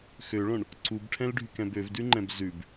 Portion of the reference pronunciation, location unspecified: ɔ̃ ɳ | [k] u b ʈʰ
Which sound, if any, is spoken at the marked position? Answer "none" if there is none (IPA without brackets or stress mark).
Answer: ǀ